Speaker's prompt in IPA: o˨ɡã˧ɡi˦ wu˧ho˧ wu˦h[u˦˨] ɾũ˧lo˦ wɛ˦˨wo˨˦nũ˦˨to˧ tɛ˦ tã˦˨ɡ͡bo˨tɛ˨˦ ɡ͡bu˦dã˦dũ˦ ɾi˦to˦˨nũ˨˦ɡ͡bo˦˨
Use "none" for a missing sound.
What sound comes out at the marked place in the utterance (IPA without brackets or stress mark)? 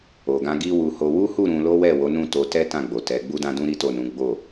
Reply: u˦˨